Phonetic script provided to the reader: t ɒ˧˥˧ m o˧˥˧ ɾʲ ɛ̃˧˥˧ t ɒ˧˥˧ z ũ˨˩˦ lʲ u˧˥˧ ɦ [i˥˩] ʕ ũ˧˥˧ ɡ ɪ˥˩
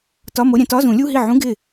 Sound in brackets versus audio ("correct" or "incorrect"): correct